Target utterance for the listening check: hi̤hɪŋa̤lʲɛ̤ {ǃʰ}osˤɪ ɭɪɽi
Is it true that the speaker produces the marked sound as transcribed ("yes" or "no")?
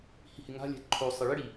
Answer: yes